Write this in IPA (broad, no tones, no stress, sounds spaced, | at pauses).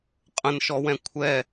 qʼ ə̃ n ʃ ɔ w ɛ̃ kʷʰ ɛ